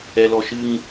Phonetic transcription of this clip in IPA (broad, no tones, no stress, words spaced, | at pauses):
ɛlɔʃɨŋ